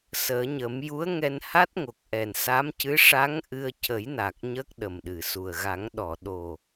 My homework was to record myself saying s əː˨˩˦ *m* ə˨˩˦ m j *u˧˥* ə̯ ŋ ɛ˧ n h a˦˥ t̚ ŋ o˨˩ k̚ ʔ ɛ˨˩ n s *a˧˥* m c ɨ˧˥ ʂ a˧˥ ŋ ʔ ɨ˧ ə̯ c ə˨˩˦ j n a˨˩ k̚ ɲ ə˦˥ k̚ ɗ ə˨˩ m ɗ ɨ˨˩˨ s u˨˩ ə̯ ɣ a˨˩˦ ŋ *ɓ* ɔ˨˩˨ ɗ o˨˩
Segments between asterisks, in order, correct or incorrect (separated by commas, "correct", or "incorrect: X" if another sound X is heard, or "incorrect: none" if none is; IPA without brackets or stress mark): incorrect: ɲ, correct, correct, incorrect: ɗ